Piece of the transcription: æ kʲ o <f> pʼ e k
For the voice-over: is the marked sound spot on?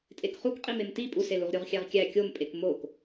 no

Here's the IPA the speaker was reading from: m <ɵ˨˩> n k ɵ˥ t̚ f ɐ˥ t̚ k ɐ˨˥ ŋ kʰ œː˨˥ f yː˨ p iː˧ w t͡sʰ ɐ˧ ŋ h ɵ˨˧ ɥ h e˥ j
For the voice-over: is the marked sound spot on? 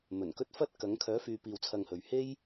yes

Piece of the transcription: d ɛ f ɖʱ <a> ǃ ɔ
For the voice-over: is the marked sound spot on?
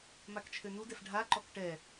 yes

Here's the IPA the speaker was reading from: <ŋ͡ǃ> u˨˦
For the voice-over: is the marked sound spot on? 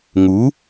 no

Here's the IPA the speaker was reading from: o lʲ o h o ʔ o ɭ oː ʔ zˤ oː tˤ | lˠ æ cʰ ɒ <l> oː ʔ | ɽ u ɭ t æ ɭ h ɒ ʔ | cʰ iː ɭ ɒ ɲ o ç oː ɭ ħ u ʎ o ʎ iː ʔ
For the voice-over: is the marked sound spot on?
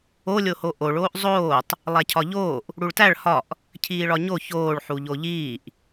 no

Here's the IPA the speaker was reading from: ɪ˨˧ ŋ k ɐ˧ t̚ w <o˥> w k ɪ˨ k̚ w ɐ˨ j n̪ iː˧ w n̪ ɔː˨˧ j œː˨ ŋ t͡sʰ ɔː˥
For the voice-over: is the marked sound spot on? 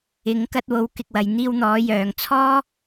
no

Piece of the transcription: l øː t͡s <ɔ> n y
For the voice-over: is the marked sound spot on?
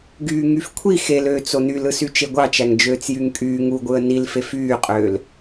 no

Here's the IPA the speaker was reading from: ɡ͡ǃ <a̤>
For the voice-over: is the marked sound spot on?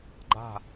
yes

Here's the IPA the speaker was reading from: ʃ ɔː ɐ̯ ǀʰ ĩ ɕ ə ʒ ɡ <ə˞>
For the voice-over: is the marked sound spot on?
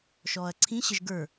yes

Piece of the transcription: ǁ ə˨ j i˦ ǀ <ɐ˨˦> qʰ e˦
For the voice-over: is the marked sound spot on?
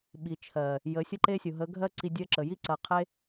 yes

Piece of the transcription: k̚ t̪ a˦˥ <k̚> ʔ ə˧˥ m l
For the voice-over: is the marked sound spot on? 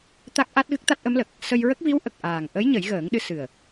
no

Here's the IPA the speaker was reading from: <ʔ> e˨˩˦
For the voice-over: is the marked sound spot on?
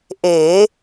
yes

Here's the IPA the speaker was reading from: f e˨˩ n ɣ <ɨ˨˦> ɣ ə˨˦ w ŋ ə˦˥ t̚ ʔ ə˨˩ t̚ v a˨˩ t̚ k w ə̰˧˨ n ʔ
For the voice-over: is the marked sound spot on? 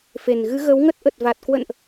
yes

